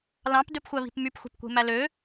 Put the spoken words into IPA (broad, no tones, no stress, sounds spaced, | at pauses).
l ɑ̃ p d ø p xʷ æ β i̤ p m y p xʷ e̤ p kʷ e̤ m æ l ø